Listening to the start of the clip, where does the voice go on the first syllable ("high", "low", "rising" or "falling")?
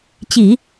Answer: low